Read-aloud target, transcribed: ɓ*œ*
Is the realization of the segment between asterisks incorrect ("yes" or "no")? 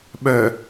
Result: no